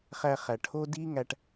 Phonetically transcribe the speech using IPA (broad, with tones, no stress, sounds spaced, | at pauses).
χ æ˨ χ æ˨ ʈʰ o˦ d i˦ ŋ æ˨ ʈ